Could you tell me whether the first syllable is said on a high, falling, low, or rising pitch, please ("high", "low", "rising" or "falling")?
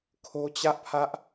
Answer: high